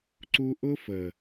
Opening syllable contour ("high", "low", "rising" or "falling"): high